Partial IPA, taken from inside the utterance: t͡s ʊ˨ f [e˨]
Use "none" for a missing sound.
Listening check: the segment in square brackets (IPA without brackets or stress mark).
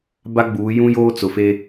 e˦